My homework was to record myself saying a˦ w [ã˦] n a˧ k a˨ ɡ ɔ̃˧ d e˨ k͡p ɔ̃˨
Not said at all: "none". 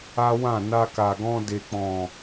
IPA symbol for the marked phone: ã˦˨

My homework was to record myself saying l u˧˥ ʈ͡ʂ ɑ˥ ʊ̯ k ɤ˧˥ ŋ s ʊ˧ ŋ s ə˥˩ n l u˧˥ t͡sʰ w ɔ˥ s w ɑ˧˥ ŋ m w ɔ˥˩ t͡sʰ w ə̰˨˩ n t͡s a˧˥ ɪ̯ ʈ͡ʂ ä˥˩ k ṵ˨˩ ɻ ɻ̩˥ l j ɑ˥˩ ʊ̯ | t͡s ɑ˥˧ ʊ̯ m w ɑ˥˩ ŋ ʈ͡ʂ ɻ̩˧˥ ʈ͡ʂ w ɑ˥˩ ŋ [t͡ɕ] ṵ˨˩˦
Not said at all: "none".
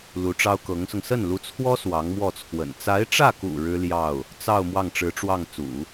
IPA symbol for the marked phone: t͡s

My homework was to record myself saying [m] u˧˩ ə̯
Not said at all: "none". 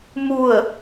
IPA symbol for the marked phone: m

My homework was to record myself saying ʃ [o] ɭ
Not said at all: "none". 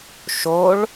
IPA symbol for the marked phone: o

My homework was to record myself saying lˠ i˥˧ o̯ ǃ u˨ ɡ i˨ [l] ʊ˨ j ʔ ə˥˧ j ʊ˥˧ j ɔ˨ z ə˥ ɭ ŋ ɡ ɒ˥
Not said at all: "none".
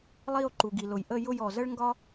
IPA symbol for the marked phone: l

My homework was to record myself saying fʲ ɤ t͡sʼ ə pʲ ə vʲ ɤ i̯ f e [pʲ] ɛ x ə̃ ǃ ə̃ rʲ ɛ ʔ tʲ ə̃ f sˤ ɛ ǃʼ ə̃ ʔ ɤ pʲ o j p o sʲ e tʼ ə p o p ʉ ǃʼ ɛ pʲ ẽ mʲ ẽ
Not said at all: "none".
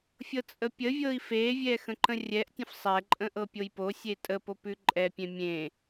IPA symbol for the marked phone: vʲ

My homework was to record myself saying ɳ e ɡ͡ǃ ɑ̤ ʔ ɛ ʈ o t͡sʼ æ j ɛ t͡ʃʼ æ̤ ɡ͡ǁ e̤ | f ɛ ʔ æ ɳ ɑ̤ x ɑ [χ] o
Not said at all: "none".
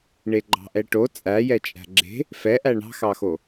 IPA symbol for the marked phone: x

